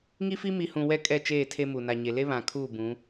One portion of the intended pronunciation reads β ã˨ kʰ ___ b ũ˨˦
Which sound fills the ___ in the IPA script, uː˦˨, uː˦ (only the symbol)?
uː˦˨